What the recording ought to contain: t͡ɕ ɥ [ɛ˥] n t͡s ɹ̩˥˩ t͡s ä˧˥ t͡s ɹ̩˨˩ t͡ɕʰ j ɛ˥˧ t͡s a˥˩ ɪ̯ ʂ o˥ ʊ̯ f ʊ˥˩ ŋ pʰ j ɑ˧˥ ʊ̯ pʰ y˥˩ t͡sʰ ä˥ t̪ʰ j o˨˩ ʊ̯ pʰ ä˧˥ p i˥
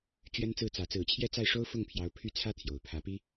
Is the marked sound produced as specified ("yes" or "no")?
yes